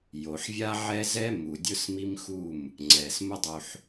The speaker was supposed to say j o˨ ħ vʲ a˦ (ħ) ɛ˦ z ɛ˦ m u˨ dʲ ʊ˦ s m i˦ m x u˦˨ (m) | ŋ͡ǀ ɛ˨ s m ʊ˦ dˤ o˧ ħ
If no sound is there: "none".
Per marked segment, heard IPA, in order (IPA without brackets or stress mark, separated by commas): ʕ, m